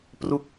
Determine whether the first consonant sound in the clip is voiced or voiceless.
voiceless